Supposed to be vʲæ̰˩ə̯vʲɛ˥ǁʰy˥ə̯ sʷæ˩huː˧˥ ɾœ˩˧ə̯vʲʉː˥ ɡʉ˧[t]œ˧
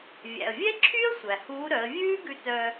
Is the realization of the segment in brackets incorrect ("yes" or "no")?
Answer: no